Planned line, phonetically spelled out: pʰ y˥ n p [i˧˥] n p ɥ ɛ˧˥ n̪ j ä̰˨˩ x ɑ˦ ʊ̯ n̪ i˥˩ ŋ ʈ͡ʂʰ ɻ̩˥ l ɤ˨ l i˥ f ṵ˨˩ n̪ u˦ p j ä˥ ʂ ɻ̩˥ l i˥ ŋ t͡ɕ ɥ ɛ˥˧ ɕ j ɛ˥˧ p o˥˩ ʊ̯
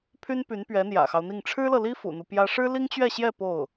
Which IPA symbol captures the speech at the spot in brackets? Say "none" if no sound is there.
y˧˥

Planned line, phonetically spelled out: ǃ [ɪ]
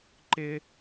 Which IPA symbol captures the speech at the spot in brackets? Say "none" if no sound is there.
ɪ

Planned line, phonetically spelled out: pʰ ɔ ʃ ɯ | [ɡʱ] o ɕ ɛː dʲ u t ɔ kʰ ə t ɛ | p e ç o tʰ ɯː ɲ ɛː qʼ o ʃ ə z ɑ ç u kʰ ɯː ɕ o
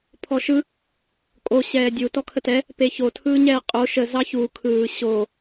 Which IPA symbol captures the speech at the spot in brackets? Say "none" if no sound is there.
kʼ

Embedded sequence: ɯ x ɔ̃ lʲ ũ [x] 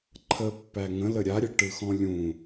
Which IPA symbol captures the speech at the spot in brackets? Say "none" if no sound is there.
none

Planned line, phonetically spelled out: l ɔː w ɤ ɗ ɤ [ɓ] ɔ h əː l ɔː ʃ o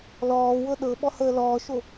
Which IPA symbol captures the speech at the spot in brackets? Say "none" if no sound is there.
ɓ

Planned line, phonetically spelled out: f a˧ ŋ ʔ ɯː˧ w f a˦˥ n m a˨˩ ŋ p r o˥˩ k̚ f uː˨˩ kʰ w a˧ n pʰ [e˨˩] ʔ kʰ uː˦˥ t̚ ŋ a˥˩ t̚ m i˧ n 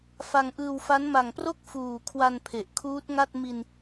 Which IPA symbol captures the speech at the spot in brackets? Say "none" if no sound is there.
e˨˩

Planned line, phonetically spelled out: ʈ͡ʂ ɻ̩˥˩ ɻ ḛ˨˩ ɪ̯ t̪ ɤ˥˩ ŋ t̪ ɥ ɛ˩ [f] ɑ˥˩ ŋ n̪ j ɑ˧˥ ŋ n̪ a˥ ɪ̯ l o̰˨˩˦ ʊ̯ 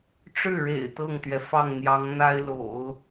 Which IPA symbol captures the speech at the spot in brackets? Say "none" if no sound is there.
f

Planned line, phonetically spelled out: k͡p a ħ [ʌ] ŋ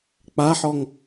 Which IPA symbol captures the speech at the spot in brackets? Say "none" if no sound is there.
ɔ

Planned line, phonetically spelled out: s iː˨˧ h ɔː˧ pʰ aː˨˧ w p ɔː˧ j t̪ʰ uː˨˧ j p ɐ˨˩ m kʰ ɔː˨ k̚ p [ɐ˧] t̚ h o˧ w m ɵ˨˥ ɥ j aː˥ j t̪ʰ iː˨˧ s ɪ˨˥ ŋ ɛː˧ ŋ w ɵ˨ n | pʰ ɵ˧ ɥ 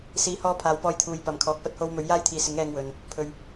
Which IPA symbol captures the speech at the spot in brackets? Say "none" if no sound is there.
ɐ˧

